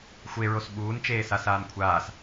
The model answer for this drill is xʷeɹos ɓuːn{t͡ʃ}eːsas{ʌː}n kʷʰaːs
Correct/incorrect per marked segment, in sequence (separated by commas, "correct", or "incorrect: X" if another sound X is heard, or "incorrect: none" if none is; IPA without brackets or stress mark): correct, incorrect: aː